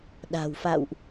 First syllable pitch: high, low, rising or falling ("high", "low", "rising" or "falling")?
low